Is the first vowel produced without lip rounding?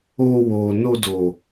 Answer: no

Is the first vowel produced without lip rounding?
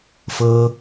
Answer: yes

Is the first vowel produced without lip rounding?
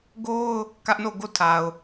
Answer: no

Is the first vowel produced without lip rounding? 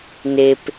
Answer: yes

